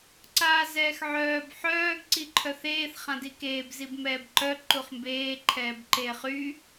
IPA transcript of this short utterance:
ǀ aː z ɛː x ʕ œː b ħ œː ɡ ǀ i ǃʰ œ θ eː θ χ ã d i k eː b z i b m ɛː b ǃ œ ǃ u χ m b eː ǃʰ ɛː b ǃ eː χ y

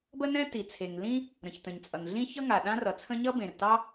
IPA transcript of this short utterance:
b ə˥ n ɛ̃˥ t i˩ t͡sʰ e˩ ŋ l ĩ˥ | ɾ ə̃˩ ç t ə̃˩ ɲ t͡sʼ ʌ˩ n ɮ ĩ˥ ç ʌ˥ ŋ a˩ ɗ ã˥ r ʌ˩ t͡sʰ ə̃˥ ɲ ʌ˥ b ẽ˩ r t ɑ˥

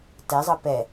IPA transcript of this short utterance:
t ɛ zˤ ɤ p ɛ

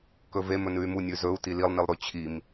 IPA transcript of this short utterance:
k ɵ v e m ɵ n ʉ y̯ m u nʲ ʉ z ɵ u̯ t i l i lˠ n i lˠ ɾ ʉ t͡ɕʰ i m

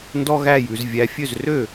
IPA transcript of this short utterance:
n d ɔ˥ ɣ æ˥˧ j ʉ˩˧ z vʲ æ˧˥ fʲ ø˥˩ z r ø˥˩

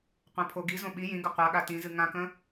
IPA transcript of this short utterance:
qʷ ɛ̃ pʰ o ɡ i z õ ɓ i j ĩ ɡ ə qʷ a ɠ a t ĩ z ɨ ŋ ã k ə̃

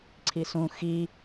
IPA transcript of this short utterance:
ǀʰ i s ũ x i

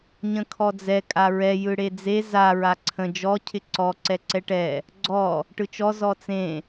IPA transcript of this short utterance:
ɲ ə̃ kʰ ɔ d͡z ɛ kʼ a ɹ ɛ j ɯ ɽ e d͡z e z a ɹ a ǀʰ ə̃ d͡ʒ ɔ cʰ ɪ ǀ ɔ ǀ ɛ ǀ ɛ ʈ ɛ | ɡ͡ǀ ɔ | ʈ ɯ t͡ʃ ɔ z ɔ t͡s ẽ

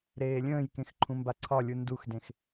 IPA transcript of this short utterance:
ɾ eː lʲ ə̃ː j k ẽ x ǃʰ ũ m b a ǀʰ ɒ lʲ u n d u x d ẽ x

